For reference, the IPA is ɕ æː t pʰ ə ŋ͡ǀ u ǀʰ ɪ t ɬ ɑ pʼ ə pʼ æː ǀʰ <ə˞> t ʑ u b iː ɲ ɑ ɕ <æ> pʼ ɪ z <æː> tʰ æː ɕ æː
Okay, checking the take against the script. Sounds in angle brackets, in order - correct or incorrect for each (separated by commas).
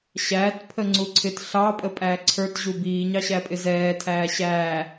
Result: correct, correct, incorrect